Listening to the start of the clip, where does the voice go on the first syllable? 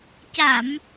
low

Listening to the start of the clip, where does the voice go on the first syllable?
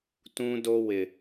high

